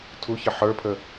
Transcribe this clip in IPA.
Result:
tʰuçɘ ħə˞pʰə

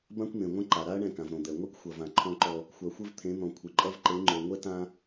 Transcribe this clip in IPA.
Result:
bã˦kʷn̪ẽ˨ŋʷɛ̃˦ǃa˨ ɾa˦ɐ̯ ɳɛ̃˦˨kã˨v ɾõ˨d̪ɛ˨ ŋʷi˦kxʷɐ˨vã˨ ǃʰɔ̃˦ǃɔ˦ | xʷa˨xʷɘ˦vt̪ʰẽ˨˦n̪ɔ̃˨ kʷʰɨ˨ǃʼɐ˦v ǃe˨˦ŋ͡ǃo˨ ŋʷɛ˦tã˦

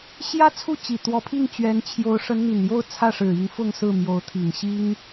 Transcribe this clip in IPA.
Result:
ɕjä˥t͡sʰu˥˩t͡ɕi˨˩ t̪wɔ˧˥pʰi˥˩ŋt͡ɕɥɛ˧˥n t͡ɕʰjo˧˥ʊ̯ʂə˧˥nn̪i˨˩njo˥˧ʊ̯ t͡sʰä˥˩ʂɻ̩˨˩i˧˥ŋ fʊ˥˧ŋsɹ̩˥˩mjo˧˥ʊ̯ t̪ʰi˨˩ŋɕi˥ŋ

